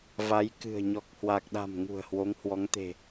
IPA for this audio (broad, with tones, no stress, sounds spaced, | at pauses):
v a˨˦ j k ɨ̤˨˩ ə̯ ɲ ɔ˨˩ k̚ h w a˨˩ k̚ ɗ a̤˨˩ m ŋ ṳ˨˩ ə̯ h w o˨˦ ŋ h w ɔ˨˦ ŋ t̪ e̤˨˩